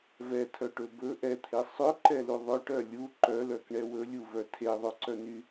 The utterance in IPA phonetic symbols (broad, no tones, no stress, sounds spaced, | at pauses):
v ɛ tʰ œ ʈ ɵ b ɵ ʔ ɛ t̪ʰ e sˤ ɵ ǃ ɛ l u ðˤ ɵ ʈ œ lʲ u ǃ œ l œ k ɳ ɛ w ɵ lʲ u v œ tʰ e ðˤ ɵ ǀ œ n y